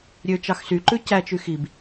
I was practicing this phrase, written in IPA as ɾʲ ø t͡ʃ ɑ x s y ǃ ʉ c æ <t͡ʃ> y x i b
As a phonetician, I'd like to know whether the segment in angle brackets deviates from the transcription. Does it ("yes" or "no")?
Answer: no